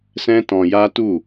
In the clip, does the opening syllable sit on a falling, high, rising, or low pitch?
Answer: high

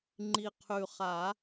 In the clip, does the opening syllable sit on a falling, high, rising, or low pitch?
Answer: low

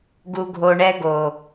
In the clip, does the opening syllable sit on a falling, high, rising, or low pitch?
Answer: low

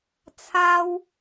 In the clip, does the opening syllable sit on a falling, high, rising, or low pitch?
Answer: high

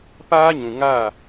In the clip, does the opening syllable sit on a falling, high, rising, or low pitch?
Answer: high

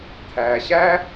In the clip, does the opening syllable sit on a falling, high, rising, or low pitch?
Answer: low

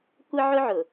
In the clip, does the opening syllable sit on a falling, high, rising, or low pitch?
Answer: high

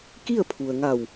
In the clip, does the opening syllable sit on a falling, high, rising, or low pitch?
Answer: falling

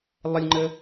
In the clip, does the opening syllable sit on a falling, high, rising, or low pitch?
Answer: high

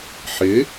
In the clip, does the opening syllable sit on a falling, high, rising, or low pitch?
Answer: rising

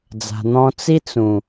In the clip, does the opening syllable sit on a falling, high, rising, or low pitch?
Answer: low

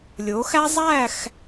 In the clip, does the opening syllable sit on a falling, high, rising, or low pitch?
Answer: rising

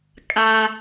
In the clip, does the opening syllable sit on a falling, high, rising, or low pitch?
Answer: high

